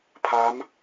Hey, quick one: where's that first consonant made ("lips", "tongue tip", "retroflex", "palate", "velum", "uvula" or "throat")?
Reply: lips